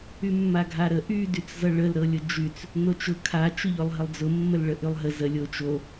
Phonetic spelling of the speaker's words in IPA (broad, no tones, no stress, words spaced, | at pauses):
ymːaɡʱaɾə ʔy dyt͡szʌɭəl ɾɤlʲʊd͡ʒyt͡s | not͡ʃʊ kʰa t͡ʃʊʎolˠɦəlˠd͡zʊ mːəlɭəʔylˠɦə zə lʲot͡ʃo